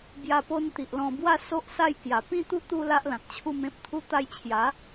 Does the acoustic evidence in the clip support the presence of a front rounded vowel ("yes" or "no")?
no